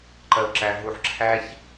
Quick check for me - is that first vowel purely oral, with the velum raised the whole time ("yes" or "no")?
yes